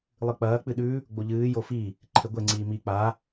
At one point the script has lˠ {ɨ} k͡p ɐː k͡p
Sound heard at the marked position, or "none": ɨ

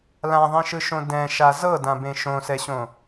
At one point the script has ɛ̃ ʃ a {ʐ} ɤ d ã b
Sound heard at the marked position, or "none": z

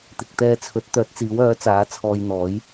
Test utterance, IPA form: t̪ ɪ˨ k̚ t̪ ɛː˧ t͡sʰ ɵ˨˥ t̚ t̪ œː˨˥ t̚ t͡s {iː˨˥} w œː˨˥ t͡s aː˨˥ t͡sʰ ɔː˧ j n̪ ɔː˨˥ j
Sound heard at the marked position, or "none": iː˨˥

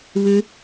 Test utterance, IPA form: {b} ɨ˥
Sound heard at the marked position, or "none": β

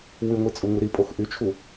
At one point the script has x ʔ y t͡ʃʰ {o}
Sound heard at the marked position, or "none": u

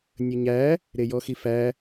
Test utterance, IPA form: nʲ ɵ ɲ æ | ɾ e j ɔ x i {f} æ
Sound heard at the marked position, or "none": f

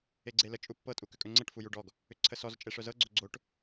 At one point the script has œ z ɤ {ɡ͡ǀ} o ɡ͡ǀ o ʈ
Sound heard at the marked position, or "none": ɡ͡ǀ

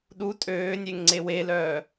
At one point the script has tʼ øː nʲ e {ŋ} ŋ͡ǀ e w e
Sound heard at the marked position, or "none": ŋ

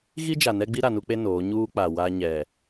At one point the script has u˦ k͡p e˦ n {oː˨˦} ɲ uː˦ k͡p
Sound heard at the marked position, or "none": oː˨˦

